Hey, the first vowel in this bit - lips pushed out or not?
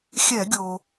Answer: no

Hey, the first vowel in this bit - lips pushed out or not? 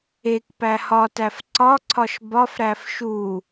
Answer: no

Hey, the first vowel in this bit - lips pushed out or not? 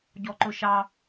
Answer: yes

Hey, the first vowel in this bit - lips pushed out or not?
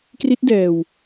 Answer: no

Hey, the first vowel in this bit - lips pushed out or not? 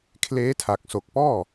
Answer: no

